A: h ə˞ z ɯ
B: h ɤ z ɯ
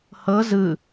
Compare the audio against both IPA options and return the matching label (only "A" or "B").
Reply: B